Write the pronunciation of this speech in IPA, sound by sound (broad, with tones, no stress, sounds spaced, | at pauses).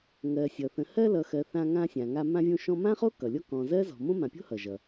ŋ ɜ˨ sʲ ʌ˩ θ ə̃˨ h ɜ˦ l ʌ˨ x ɜ˨ θ ã˦ ŋ ã˦ sʲ ã˨ ŋ a˦ m ã˦ vʲ õ˦ ʃ ɔ̃˦ m ã˥ χ o˥ k ʌ˩ lʲ ɔ˦ k ɔ̃˨ z ɜ˥ z ɔ̤˨ m õ˥ m ã˨ pʲ o̤˥ h ʌ˩ ʒ ʌ˩